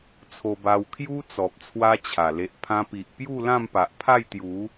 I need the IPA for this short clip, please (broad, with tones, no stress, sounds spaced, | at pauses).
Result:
t͡sʰ o˧ b a˧ w kʰ j u˦ t͡s ɔ˨ p̚ t͡sʰ w a˦ t͡ɕʰ a˨˩ l e˨ ʔ pʰ ã˧ p i˨ ʔ p j u˥˧ l ã˥˧ m p a˨ ʔ pʰ a˥˧ j t̪ j u˨˦